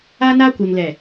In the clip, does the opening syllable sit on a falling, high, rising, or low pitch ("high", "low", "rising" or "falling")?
high